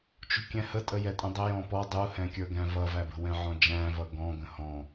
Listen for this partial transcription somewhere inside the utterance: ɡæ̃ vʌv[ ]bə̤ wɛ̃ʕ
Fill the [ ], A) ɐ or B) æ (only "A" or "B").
B